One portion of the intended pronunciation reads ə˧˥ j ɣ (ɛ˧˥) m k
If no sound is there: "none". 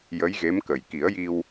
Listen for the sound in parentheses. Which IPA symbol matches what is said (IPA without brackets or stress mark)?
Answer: e˧˥